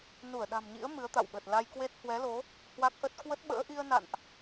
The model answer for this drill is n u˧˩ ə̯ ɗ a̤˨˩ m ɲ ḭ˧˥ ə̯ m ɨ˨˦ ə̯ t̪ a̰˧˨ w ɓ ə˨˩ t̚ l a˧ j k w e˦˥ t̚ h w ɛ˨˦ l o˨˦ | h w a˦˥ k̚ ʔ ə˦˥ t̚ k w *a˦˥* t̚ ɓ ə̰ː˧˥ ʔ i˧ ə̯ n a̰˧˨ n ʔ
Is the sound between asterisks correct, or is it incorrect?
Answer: incorrect